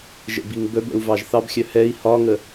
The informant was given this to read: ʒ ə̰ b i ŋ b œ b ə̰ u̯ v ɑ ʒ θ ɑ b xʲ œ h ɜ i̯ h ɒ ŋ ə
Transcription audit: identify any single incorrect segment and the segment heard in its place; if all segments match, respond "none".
ɜ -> ɛ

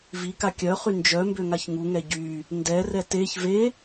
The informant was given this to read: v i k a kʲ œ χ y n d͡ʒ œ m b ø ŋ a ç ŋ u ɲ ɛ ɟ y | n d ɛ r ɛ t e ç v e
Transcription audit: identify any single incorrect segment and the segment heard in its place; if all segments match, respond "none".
ɲ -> ŋ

